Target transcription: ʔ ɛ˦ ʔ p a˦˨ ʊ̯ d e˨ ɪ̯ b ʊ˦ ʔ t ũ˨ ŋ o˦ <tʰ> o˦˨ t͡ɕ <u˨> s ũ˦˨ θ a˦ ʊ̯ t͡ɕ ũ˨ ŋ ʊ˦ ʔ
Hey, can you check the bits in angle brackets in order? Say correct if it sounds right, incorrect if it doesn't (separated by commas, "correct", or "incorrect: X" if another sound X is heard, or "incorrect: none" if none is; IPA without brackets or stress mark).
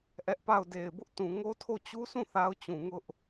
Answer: correct, incorrect: u˦